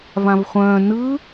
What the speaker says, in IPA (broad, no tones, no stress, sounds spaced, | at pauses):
v ã v χʷ œ̃ː n ɯ